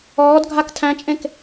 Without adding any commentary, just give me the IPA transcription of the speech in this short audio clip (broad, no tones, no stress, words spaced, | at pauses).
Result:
ɔːd ɡʱak tʰæ̃t͡ʃʼẽk